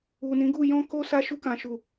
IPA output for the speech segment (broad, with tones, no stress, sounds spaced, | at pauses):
u˨ n ĩ˨˦ ɡ u˦˨ j ɔ̃˧ k o˧ s a˧ ʃ u˧ k ã˨ ʃ u˨